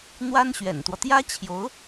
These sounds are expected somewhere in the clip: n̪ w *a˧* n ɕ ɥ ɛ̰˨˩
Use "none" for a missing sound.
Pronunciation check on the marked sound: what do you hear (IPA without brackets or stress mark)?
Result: a˥